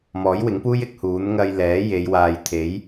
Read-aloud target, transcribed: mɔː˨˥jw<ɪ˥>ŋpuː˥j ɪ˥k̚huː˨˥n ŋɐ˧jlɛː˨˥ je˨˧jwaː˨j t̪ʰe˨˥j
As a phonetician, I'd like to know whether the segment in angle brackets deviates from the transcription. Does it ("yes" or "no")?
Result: yes